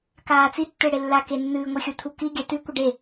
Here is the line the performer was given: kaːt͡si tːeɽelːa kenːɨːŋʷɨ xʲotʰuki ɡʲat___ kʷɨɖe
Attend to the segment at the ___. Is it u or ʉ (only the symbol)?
ʉ